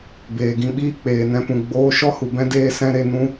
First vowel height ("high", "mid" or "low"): mid